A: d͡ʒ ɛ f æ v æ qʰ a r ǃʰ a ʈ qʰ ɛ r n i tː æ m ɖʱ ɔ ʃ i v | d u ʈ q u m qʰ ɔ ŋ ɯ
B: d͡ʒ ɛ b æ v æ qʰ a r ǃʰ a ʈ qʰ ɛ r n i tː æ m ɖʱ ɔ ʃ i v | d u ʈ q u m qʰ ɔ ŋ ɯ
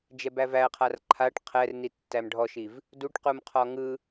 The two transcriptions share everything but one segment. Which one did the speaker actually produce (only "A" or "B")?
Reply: B